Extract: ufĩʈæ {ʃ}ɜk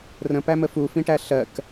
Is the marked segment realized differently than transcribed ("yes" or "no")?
yes